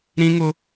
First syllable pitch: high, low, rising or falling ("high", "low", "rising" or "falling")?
high